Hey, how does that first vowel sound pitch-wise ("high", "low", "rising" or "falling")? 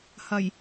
low